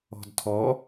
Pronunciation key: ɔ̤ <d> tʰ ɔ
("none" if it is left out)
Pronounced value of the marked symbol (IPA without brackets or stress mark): d